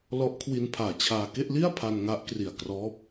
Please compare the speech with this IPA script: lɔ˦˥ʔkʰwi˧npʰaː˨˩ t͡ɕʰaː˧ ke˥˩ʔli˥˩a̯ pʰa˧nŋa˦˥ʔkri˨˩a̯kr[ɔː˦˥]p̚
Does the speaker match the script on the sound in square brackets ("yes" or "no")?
yes